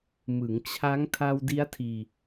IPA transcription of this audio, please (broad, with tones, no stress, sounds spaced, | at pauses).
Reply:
m ɯ˩˦ ŋ t͡ɕʰ a˦˥ ŋ tʰ a˧ w d i˦˥ a̯ tʰ iː˧